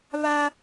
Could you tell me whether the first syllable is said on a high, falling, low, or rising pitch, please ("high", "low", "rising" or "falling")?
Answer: high